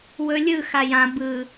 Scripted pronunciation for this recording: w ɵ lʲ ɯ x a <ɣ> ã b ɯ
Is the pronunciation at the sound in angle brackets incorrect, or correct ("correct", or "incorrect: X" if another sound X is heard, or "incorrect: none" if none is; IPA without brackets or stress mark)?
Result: incorrect: j